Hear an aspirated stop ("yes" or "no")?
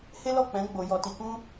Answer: no